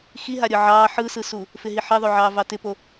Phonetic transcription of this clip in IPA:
x i ɦ a ɾʲ ɯ ʕ ɑː ħ ɯ s ɯ s u | f ɪ ɦ i ħ ɪ ðˤ o ʕ ɑː v ɑ t ɪ p o

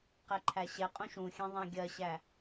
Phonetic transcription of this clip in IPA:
q ɛ ǃʰ æ ɕ ɛ qʼ ũ ʃ ũ xʲ ɛ̃ ðˤ æ̃ ɡʲ ɜ ɕ æ

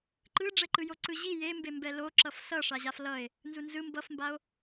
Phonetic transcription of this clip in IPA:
ǃ ɯ ɖ͡ʐ ɛ ǃ ɯ j o ǀ ɯ ʑ i j e m b e m b ɛ l o ǁ ʌ f s ʌ ʂ a ʑ a f l ʌ e̯ | n z u n z ɯ m b ʌ f m b a o̯

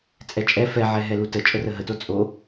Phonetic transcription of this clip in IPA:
t͡sʼ ɛ t͡ʃʼ ɛ f ɛ ʕ ɛ ɦ ɛ l u t ə t͡ʃʼ ə r ə ɦ ə t o t͡sʼ o

